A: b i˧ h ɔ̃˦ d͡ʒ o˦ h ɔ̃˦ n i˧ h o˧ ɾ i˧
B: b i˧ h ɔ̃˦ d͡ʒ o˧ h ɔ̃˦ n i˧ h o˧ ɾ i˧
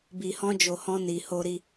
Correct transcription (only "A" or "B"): B